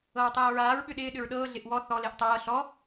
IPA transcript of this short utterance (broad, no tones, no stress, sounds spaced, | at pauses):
ɤ ɹ tˤ ɤː ɹ aː ɹ ɓ ʏ ɗ ɪː ɗ ʏ ɹ ɗ ɤː ɮ ɪ ʔ w ɔ θ ɔ l ɪː ʔ tˤ ɤː ɬ ɔ